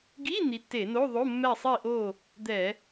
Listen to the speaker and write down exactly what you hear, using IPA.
ɡ i˧˥˧ n̪ i˨˦ tː e˧˩˧ n o˧˥˧ ðˤ o˧˥˧ mː ɛ˥˨ sˤ i˥˨ ʔ o˥˨ | d̪ ɛ˧˩˧

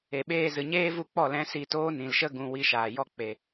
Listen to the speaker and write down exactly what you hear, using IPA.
e˨ ɓ eː˧ z ɨ˨ ɲ eː˦ v u˧ k͡p ɔ˦˨ l ɛ̃˨˦ s i˧ t oː˦ n ĩ˨ l ʃ ə˦ ɡ ũ˨ w i˧ ʃ aː˨ j ɔ˦ k͡p e˨

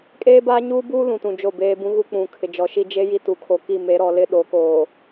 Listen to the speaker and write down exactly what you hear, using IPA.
kʼ eː˦ b aː˦ ɲ uː˦ b uː˦ l ũ˨ t ũ˨ d͡ʒ o˦˨ b eː˦ b ũ˦ ɣ u˦ k͡p ũ˨ kʰ ɪ˨ d͡ʒ ɔ˨ ʃ i˦ d͡ʒ e˦ j i˦ t u˨˦ kʰ o˨ k i˦˨ m e˨˦ ɾ ɔ˨ l ɪ˦ ɗ o˨˦ k oː˨

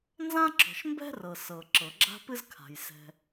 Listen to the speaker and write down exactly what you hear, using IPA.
n z ã˥ ǁ ɔ̤˩ ʃ m b ɛ̤˥ r ɤ˩ s ɤ˩ ǁ ɤ˩ ɡ͡ǁ a̤˥ p ɨ˥ z kʰ a̤˩ j s ɛ̤˩

